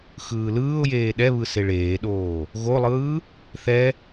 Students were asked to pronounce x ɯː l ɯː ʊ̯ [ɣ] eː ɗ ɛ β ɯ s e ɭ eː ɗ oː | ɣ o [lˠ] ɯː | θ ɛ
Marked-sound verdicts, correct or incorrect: incorrect, correct

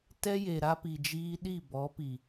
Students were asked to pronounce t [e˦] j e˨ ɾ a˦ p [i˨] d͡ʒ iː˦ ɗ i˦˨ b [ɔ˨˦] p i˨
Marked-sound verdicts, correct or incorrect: incorrect, correct, correct

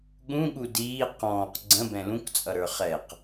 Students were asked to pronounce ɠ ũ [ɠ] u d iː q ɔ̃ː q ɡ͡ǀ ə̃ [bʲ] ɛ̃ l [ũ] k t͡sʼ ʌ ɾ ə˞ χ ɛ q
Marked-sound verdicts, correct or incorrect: correct, incorrect, correct

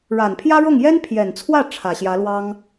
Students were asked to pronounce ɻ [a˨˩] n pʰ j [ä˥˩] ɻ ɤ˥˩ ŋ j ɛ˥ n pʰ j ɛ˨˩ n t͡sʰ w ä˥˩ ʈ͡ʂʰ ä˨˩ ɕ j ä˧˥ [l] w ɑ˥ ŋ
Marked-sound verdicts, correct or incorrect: correct, incorrect, correct

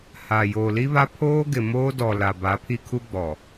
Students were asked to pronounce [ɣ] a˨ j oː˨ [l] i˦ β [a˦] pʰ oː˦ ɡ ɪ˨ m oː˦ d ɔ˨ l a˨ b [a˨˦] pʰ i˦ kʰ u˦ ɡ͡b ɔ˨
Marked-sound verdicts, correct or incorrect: incorrect, correct, correct, correct

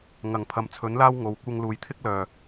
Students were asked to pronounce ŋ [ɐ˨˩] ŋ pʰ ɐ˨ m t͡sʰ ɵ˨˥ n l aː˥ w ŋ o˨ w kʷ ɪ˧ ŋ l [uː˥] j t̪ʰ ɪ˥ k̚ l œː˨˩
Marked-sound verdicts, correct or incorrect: correct, incorrect

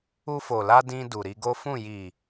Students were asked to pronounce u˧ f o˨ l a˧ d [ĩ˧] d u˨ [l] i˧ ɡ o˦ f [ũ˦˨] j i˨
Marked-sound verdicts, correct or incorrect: correct, incorrect, correct

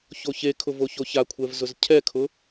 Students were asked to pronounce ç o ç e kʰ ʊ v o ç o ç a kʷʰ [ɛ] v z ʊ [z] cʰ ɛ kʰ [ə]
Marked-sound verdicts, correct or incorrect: correct, correct, incorrect

